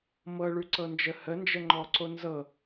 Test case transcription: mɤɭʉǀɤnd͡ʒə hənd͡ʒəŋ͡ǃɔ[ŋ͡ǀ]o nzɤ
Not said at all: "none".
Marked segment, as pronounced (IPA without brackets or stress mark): ǀ